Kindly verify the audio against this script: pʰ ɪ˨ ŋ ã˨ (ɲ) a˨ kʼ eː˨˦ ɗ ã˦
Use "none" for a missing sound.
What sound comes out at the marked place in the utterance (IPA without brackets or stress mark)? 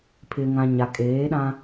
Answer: ɲ